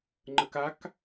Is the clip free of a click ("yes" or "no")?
no